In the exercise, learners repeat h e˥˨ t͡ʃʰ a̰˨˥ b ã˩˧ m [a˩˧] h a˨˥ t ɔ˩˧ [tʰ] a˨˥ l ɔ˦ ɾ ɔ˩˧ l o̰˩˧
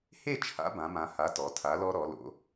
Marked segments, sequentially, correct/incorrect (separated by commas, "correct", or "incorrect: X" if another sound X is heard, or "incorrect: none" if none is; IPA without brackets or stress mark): incorrect: ã˩˧, correct